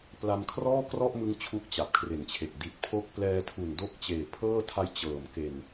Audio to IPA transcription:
p l a˧ m kʰ r ɔː˥˩ k r ɔ˥˩ ʔ m ɯ˦˥ ŋ t͡ɕʰ u˥˩ k̚ t͡ɕ a˨˩ p̚ kʰ r e˨˩ n t͡ɕʰ e˨˩ k̚ d i˨˩ t̚ pʰ o˦˥ k̚ p l ɛː˧ tʰ u˨˩ n d o˦˥ k̚ t͡ɕ eː˨˩ pʰ ɤː˥˩ tʰ a˧ j t͡ɕ ɤː˨˩ m k e˨˩ n

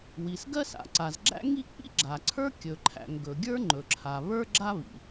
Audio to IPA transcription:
w i˩ s ɡ ɜ˥ s a̰˩ ǀ a˩ z ɡ͡ǁ æ̰˥ ŋ i˥ k͡p ḭ˥ ɡ͡ǁ a˩ ǀʰ ə˞˥ kʲ ɵ˩ ǃʰ æ̰˩ ŋ ɡ ɵ˩ ɡʲ ə˞˥ ŋ͡ǃ ɵ˩ ǁʰ a˩ β ə˞˥ ɡ͡ǁ a˥ β ḭ˩

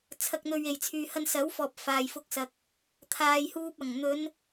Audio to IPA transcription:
t͡sʰ ɐ˨ k̚ n̪ ɵ˨ ɥ e˨˩ j t͡sʰ yː˨ h ɐ˧ n s ɐ˨˥ w f ɔː˨ p̚ f aː˨ j f ʊ˧ k̚ s ɐ˨ k̚ | t̪ʰ aː˨ j h uː˧ p̚ ɐ˨˩ ŋ n̪ ɵ˨˧ n

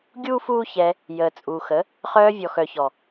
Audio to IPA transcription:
ɡʲ uː˦ f uː˦ ç ɛ˧ | j əː˨ t͡sʼ uː˨ x ə˨˦ | χ œː˧ vʲ ɔ˨ x œ˨ ç ɔ˨

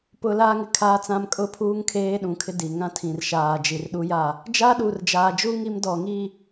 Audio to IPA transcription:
p ʊ˦ l aː˦ ŋ ɪ˨ kʰ aː˦ t͡s ã˦ m kʼ ʊ˦ pʰ uː˦ ŋ kʰ eː˦ ɗ ũ˨˦ kʰ ɪ˦ d i˨ ŋ ã˦ tʰ ĩ˨ r ʃ aː˨ d͡ʒ i˨ r ɗ u˦ j a˦˨ | d͡ʒ aː˦ ɗ uː˨ r d͡ʒ aː˨ d͡ʒ u˦ ŋ i˦ m d ɔ˨ ŋ iː˦˨

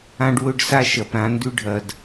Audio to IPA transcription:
ã˦ ɖ w ɵ˦ ɖ s a˦ ʃ ɐ˨ p ɾ ã˦ n d ʉ˦ ɖʱ ɐ˨ d

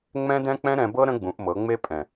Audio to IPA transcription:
ŋ͡m ɛ̃˦ d ɛ̃˦ k͡p ɛ̃˦ ɾ ɛ̃˧ b ɤ˦ ɾ ə̃˦ ɡ͡b ũ˨˦ ʔ m ɤ˨˦ ŋ͡m e˦ pʼ ɛ̃˨

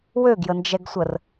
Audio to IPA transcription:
w ø ɡ j ə n d͡ʒ ɛ ɡ sʷ ə r

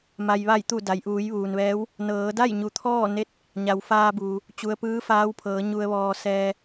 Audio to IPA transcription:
m a˩ j ʋ a˧˩ j t̪ u˧˩ d a˩ j ʔ uː˩˧ j ʋ uː˩ n ʋ ɛː˧˥ w | n ɤː˩˧ d a˥˨ j ɲ u˩˧ t̪ʰ ɔː˥˨ n e˥˨ t̚ | ɲ a˩ w f aː˧ b uː˩ | t͡ɕ u˩ ə̯ p ɯː˧˥ f aː˧˥ w pʰ ɤː˩˧ ɲ u˧ ə̯ ʋ ɔː˧ s ɛː˧

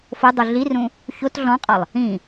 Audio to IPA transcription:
f o dˤ u ɮ i r ũ | ç o t ɮ ɔ̃ qʼ ɒ lˠ | ĩ

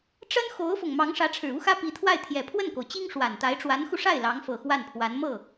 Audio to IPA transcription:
ʈ͡ʂ ə˥ n x o˧˥ ʊ̯ f ʊ˨˩ ŋ m ɑ˧˥ ŋ ʂ ä˧˥ ʈ͡ʂʰ ɻ̩˨˩ u˥ x ä˥ p i˧˥ t̪ʰ w a˥˩ ɪ̯ t̪ʰ j ɛ˨˩ pʰ w ə˥˩ n k o˩ ʊ̯ t͡ɕ i˥ ŋ ʂ w a˨˩ n t̪ a˧˥ ɪ̯ ʈ͡ʂ w a˧˥ n x u˧ ʂ a˥˩ ɪ̯ l ɑ˧˥ ŋ f ɤ˨˩ x w a˥˩ n pʰ w a˧˥ n m ɤ˥˩

